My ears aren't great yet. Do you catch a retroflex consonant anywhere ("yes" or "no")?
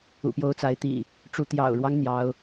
yes